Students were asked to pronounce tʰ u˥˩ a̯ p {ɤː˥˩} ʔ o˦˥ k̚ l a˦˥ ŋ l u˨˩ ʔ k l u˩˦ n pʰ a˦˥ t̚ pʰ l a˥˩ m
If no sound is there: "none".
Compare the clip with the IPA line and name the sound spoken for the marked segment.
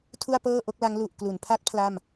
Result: ɤː˥˩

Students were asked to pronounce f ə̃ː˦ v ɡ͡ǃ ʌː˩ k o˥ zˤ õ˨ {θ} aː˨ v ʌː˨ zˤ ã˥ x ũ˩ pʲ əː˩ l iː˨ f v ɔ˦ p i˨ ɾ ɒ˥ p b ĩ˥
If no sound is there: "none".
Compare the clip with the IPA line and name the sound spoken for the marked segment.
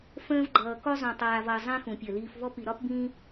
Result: tˤ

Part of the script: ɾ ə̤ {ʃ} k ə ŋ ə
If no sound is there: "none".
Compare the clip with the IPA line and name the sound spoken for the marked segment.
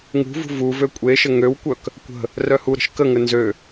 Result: ʃ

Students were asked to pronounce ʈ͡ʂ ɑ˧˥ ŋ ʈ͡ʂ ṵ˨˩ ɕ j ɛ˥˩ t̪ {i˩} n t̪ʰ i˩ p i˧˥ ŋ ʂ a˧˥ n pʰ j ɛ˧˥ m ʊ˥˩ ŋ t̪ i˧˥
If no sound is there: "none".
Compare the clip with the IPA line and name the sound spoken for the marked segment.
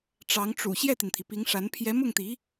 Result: i˩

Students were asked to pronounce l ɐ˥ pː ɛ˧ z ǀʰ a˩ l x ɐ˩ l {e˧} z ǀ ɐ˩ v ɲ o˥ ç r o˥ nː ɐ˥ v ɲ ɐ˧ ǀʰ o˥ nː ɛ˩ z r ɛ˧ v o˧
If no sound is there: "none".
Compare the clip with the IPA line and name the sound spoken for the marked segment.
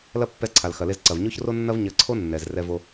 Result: e˧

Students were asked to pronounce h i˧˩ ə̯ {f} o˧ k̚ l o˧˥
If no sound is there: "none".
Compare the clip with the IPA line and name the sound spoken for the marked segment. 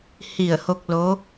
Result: h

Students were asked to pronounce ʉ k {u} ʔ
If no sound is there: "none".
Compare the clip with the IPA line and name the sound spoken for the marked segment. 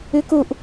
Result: u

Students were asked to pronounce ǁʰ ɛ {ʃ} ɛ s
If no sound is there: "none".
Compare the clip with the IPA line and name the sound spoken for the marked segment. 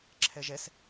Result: ʒ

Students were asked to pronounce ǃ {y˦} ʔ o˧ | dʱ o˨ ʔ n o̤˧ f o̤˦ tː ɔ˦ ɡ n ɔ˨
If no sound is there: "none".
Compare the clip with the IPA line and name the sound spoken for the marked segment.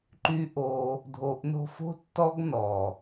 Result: y˦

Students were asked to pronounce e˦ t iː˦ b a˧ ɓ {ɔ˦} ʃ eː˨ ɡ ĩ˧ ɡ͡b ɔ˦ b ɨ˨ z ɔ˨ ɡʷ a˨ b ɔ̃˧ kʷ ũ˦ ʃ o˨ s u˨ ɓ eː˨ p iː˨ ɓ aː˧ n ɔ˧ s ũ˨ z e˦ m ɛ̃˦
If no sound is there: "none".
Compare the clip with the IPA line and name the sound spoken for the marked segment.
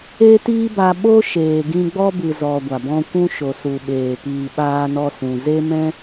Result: o˦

